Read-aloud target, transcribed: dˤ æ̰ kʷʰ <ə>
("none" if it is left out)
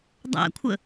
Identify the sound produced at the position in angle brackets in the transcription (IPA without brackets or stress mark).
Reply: ə